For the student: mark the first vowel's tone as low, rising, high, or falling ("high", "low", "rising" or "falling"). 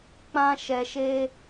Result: high